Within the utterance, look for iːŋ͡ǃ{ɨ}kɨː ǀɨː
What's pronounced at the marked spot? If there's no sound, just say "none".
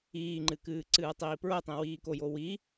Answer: ɨ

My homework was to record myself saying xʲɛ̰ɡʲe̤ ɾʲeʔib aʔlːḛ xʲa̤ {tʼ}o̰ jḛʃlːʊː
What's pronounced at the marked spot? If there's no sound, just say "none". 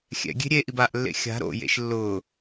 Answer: ɾ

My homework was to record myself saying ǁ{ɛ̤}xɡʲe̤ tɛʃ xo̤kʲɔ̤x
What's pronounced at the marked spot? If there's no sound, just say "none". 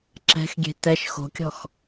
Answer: ɛ̤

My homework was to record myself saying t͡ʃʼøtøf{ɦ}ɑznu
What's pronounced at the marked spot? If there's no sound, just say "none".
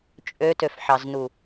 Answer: ħ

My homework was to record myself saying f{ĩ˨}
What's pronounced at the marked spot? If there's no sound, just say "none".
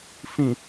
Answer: ĩ˨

